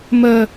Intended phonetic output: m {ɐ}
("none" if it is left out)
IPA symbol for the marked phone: ə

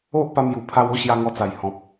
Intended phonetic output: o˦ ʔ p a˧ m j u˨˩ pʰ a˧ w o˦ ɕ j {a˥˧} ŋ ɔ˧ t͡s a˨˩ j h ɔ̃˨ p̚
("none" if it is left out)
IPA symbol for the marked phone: a˧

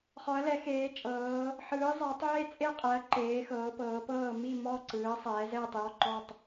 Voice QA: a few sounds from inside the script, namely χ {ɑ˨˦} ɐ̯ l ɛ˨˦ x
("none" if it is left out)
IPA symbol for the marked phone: ɔ˨˦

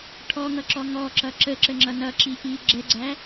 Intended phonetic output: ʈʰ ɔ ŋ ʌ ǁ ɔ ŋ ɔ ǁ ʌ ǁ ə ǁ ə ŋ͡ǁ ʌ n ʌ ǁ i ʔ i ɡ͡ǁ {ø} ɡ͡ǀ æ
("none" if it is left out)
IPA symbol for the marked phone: ɛ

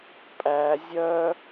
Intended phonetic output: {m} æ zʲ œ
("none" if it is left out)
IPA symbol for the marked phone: pʼ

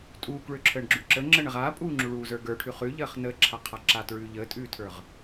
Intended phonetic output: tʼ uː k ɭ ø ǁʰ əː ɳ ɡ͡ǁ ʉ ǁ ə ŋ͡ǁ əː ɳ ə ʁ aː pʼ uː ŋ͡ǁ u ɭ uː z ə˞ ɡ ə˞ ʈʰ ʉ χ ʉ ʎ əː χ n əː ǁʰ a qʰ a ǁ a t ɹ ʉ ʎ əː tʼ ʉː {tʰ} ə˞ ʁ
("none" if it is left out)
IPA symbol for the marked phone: tʰ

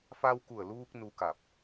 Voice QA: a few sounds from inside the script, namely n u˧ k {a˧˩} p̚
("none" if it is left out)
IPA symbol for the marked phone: a˧˩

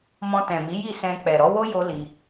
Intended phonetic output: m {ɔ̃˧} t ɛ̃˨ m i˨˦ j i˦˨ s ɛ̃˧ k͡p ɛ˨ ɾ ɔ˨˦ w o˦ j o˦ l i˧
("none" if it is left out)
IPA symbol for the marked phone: ɔ̃˧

